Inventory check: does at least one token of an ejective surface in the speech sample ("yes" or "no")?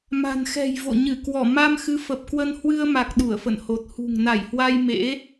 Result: no